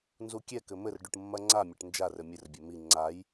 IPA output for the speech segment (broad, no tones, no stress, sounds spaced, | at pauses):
n z u kʲ ɛ k ɘ m ɘ r ɖ u ʈ mː ɐ ŋ͡ǀ a mʲ ɐ ʈ n d͡ʒ a r ɘ mʲ ɘ r bʲ ɛ m i ŋ͡ǀ a j